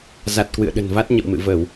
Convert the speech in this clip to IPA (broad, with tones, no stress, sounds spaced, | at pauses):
z a˨˩ t̚ k w ɨ̰˧˨ ə̯ ɗ ə̤˨˩ n v a˦˥ t̚ ɲ ə̰˧˨ w m ɨ̰˧˨ v ə˧˩˨ w